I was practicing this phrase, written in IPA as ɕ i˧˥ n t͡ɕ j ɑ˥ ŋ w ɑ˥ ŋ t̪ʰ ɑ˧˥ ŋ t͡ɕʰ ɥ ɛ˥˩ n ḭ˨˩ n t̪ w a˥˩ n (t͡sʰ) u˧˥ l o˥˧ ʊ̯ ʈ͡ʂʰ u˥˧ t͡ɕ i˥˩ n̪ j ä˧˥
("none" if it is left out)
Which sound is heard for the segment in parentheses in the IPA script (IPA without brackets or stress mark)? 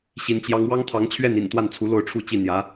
t͡sʰ